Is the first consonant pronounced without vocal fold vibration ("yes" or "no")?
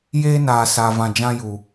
no